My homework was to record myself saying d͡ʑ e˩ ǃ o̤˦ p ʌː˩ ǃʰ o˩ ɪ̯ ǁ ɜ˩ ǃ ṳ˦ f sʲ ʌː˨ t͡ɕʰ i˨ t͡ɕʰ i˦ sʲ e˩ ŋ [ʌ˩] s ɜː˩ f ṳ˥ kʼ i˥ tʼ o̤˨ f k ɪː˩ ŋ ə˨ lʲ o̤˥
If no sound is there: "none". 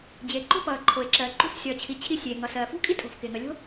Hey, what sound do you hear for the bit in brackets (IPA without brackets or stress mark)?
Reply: ʌ˩